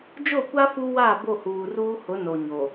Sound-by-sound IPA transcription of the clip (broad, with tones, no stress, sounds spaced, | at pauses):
d͡ʒ o˦˨ kʷ a˦ f u˦ w a˦˨ b o˦˨ h uː˨ r uː˦ h ʊ˨˦ n o˨ ɲ o˨